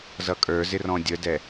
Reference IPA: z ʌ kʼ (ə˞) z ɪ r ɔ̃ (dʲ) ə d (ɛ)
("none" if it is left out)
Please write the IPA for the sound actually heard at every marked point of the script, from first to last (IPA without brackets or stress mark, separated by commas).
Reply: ə˞, dʲ, ɛ